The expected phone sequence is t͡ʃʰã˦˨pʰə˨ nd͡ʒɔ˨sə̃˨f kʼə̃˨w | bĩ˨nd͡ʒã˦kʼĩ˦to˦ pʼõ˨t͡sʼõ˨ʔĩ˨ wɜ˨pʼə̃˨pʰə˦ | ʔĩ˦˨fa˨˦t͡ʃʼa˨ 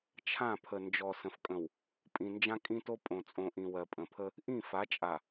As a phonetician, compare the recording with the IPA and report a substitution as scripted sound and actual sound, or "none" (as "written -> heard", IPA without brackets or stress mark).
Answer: b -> pʼ